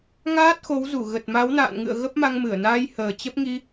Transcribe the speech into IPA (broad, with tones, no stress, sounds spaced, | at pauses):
ŋ aː˦˥ t̚ x o˨˦ w z u˧˩ ɣ ə˨˩ t̚ m a˨˦ w n a̰ː˧˨ n ŋ ɨ̰˧˨ ə̯ ɣ ə˦˥ p̚ m a˧ ŋ m ɨ˧˩ ə̯ n aː˧ j h əː˨˩ t͡ɕ ə˦˥ p̚ ŋ i˧